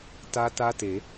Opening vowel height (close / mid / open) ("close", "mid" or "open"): open